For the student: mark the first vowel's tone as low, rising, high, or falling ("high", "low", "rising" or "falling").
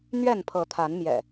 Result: falling